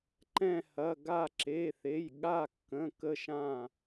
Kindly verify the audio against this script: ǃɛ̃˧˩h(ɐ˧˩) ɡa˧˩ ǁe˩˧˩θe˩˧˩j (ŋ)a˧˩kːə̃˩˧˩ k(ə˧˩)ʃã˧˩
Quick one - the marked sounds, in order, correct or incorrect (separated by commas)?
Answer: incorrect, incorrect, correct